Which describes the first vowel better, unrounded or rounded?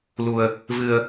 rounded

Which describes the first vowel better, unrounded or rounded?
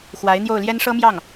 unrounded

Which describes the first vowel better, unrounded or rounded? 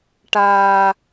unrounded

